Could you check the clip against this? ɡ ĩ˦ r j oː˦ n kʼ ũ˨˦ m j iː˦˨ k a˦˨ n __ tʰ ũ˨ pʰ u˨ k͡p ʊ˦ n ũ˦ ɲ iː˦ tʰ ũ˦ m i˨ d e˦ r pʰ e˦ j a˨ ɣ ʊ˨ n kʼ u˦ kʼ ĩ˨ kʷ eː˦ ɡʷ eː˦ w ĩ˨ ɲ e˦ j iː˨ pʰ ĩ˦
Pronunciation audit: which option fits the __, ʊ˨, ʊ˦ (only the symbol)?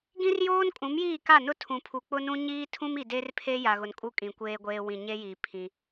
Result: ʊ˦